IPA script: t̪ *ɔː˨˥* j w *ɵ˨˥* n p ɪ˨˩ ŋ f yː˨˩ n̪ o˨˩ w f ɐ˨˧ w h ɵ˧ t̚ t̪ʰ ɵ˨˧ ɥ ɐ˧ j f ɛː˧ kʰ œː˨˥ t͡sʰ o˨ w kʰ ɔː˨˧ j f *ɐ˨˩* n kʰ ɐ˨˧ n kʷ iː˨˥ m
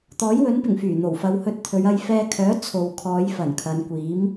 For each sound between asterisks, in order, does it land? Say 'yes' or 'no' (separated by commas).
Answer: yes, yes, yes